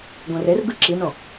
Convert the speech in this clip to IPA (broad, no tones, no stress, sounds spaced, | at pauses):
ɡ õ r e r ɡ ɯ ǁ i n õ